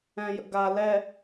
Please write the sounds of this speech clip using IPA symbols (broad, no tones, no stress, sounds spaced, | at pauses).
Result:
ɛ̃ j ə̰ ɡ a l ɛ